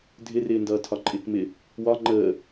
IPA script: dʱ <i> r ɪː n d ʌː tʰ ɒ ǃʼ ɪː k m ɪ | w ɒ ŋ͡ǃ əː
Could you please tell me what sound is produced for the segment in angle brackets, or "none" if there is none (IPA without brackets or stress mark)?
ɪ